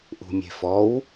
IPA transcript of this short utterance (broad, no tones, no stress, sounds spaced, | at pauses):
ʔ ṳ mʲ e̤ f ɔ w